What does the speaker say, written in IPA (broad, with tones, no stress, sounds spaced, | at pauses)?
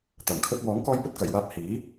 t̪ ɐ˨˩ m kʰ ɵ˧ t̚ w ɔː˨˥ ŋ k ɔː˧ j p ɵ˧ t̚ k ɐ˨˩ j w aː˧ p̚ h iː˨˥